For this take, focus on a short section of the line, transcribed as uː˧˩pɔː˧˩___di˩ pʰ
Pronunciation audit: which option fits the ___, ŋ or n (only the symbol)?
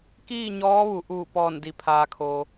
n